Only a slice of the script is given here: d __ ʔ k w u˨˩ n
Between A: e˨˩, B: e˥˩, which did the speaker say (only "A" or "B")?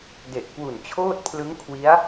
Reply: A